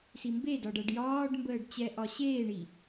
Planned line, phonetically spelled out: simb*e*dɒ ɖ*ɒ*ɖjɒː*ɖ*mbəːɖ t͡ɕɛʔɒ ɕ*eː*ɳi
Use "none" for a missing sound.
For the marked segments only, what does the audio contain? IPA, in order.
e, ʌ, ɖ, eː

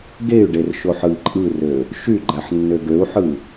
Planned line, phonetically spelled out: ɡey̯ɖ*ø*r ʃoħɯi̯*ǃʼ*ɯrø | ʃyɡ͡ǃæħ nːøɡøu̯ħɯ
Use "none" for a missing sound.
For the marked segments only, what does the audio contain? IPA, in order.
e, ǃʼ

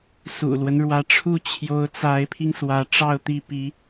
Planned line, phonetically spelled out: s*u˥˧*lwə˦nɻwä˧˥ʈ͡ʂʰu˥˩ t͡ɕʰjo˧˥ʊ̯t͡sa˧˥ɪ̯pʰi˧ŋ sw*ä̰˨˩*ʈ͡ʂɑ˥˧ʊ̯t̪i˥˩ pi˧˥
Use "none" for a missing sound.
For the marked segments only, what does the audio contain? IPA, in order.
ṵ˨˩, ä˧˥

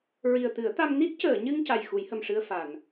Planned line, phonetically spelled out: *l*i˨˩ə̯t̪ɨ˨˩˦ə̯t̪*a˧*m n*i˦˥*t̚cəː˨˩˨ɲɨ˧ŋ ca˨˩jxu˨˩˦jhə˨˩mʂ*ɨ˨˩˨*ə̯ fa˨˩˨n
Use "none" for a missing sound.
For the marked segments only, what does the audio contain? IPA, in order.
ɹ, a˧, i˦˥, ɨ˧

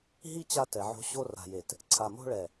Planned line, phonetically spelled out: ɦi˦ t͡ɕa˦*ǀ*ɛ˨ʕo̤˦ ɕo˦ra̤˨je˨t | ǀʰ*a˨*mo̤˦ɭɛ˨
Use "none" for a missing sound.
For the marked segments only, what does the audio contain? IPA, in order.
t, a˨

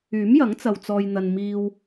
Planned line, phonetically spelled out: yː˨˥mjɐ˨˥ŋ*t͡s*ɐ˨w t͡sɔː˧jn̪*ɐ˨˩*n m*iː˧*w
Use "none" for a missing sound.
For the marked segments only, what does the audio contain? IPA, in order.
t͡s, ɐ˧, iː˧

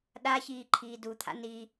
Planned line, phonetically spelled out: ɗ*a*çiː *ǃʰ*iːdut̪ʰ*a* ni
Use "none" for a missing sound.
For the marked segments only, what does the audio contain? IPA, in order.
a, ǃʰ, a̰

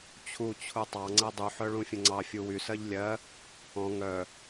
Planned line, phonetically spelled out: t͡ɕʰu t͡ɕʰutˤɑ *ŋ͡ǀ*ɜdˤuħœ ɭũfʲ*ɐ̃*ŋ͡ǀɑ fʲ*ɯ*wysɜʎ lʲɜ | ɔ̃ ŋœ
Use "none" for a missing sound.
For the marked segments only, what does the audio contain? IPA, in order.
ŋ͡ǀ, ə̃, u

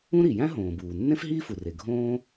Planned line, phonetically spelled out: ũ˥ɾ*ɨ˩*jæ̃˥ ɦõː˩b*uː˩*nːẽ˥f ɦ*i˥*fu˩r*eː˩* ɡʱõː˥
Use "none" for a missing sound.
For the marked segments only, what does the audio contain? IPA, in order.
i˩, uː˩, iː˥, e˩

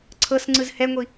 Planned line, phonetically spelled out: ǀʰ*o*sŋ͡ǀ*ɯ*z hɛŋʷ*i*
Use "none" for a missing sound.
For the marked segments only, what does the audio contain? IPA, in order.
ɤ, ɯ, i

